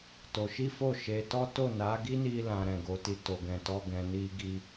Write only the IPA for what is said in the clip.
t o˧ ʃ i˦ f o˦˨ ʃ e˨˦ t ɔ˦ t o˦˨ n a˨˦ ɡ i˦ n i˧ l ã˨ ɾ ɛ̃˨ ɡ o˨˦ t i˧ t o˨ ɡ ɛ̃˧ t ɔ˦ ɡ ɛ̃˧ n i˦ ɡ i˦

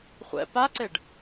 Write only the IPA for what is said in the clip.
χʷ ɛ̰ p a ǀ e ɖ

